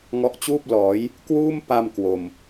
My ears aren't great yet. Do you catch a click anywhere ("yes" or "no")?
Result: no